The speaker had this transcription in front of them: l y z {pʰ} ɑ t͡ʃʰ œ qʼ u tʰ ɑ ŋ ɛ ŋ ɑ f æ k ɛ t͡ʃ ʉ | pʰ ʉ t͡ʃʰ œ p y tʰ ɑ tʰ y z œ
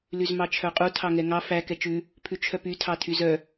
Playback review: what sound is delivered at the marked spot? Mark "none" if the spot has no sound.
m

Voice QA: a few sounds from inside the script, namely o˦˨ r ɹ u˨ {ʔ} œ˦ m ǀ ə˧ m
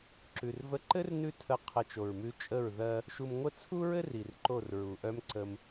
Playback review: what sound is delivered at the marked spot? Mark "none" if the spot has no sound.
ʔ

